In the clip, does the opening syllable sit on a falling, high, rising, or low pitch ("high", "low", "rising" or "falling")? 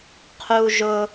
high